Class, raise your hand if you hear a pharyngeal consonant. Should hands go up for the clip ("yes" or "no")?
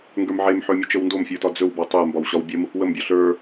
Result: yes